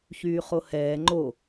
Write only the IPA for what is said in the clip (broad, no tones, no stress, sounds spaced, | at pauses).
ç yː χ o h ɛː ŋ͡ǃ o